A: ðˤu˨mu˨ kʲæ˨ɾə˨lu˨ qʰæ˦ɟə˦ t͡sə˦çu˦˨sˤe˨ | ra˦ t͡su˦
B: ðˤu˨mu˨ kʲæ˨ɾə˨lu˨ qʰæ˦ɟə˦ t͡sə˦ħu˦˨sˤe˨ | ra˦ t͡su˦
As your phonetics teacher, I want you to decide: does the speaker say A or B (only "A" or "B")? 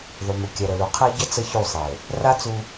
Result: A